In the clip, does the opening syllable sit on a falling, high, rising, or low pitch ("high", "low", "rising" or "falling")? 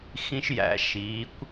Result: high